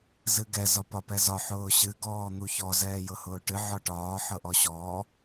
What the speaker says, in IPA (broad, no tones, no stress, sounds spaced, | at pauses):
z ɨ ɡ ɛ z ɒ p ɒ p ɛ z ɒ ħ ʊː ɕ ɨ ɡ ɔː n̪ u ç ɔ z ɛː j ɤ h ʊː ʈ ɨ ʕ ɒ ʈ ɒː ħ ɤ ʔ ɔ ɕ ɔː